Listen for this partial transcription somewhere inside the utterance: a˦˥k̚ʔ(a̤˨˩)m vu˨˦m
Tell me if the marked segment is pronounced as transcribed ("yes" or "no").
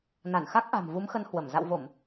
yes